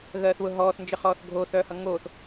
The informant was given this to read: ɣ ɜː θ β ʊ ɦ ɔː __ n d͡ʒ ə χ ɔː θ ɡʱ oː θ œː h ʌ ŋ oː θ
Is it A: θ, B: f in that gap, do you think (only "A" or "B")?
A